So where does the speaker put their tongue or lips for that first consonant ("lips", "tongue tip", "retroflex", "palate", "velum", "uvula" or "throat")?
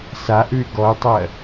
tongue tip